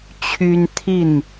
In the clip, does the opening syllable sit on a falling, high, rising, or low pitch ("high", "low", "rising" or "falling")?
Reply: high